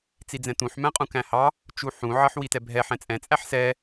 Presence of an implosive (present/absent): absent